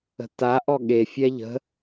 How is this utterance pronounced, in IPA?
ə̤ t a ʔ ɔ ɠ e fʲ ɛ ʎ ə̤

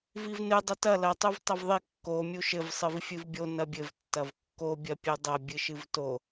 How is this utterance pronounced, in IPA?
v i v n ɨ dˤ ɘ t ɐ l ɐ tˤ u v tˤ ɐ v ðˤ i kː o mʲ u ʃ ɘ v sˤ ɨ v fʲ ɨ v bʲ o n ɐ bʲ ɘ v tː ɐ v kː o bʲ ɐ pʲ ɨ dˤ ɐ bʲ ɨ ʃ ɨ v t o

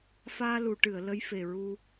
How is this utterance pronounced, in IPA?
f aː˧ l u˨˩˨ ʈ ɨ˨˩˨ ə̯ l ə˧˥ j f e˨˩ ɹ u˧

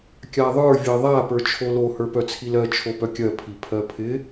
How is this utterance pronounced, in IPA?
kʲ a ðˤ ə˞ vʲ ɜ ðˤ a p ə˞ t͡ʃʰ o l o h ə˞ p œ t͡sʰ i l ɜ t͡ʃʰ o p œ kʲ ɜ pʰ i pʰ ɜ pʰ ɪ

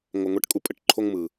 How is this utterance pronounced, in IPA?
ŋʷ ə˧ ŋʷ ɛ˦ ʈ kʼ u˦ pʼ ə˨ ʈ ǃʰ o˦ ŋ m ɯ˨

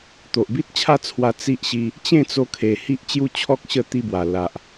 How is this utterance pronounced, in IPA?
t̪ o˨ ʔ b i˦ t̚ t͡ɕʰ a˥˧ t͡sʰ w a˧ t͡s i˦ ʔ ɕ i˧ | t͡ɕ ẽ˥˧ t͡s o˧ kʰ e˨˩ h i˦ ʔ t͡ɕ j u˥˧ t͡ɕʰ ɔ˦ k̚ ɕ ə˥˧ t̪ i˧ b w a˨˩ l a˨ ʔ

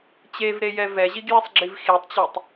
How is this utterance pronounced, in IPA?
t͡ɕ e v ɾ e j ɛ v ɛ ʑ i ɡ j e sˤ ɡ͡ǁ i v x i tˤ t͡ɕ o tˤ

